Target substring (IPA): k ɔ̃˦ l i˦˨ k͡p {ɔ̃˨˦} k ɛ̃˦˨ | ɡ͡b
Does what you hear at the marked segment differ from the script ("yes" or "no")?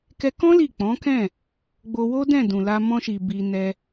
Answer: no